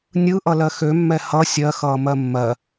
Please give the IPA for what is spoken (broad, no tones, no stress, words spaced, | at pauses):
nʲɯʔʌlɜ xømːɛ hʌ sʲɜ xʌːmɜmːɜ